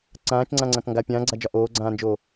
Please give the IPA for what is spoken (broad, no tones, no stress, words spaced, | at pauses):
ǀãːt͡ʃŋ͡ǀãŋ͡ǀãk ŋɡa pʲãːɡ͡ǀad͡ʒɒ ʔoːɡ͡ǀãːnd͡ʒoː